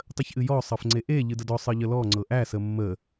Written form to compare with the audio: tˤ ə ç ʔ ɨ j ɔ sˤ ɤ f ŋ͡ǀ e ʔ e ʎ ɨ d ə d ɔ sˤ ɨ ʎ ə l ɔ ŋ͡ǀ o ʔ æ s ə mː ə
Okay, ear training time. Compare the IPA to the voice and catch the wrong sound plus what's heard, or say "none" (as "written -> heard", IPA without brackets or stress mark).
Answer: o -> ɤ